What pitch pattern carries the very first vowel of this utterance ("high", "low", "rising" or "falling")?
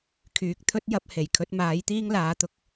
low